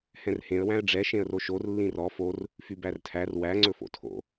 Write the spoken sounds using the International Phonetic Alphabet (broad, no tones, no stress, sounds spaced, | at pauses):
h ɛ̃ r h ẽ ə̯ w æ̃ ə̯ ɖ͡ʐ ɛ ʃ ẽ ə̯ r o ʃ o r lː ĩ r ɔ f o r | f y b æ r tʰ æ r w æ ŋ͡ǀ ɵ f o̰ tʰ o̰